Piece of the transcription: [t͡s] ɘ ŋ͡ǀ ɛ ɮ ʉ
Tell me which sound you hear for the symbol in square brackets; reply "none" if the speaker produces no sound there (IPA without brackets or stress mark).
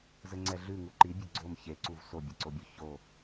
z